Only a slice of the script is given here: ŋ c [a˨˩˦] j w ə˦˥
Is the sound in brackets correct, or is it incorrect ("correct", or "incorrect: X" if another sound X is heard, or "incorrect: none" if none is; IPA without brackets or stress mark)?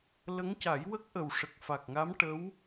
correct